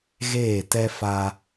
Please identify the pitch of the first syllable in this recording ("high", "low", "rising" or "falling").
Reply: falling